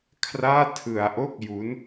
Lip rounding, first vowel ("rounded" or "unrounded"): unrounded